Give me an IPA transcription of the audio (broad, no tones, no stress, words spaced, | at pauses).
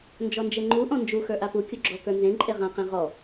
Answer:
nd͡ʒɔnd͡ʒeŋ͡ǃu ʔɔ̃nd͡ʒu xə˞ʔapu kʲuɡ͡ǁɔ kə˞nzẽ ǃʼeʁã qẽʁɔ